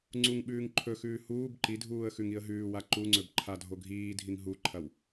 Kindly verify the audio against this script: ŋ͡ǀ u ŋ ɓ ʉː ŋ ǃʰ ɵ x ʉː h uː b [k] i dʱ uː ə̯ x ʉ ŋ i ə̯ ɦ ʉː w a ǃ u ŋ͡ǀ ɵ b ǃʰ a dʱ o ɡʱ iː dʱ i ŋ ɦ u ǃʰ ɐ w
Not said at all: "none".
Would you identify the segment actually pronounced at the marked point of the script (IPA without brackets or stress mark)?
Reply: ǃ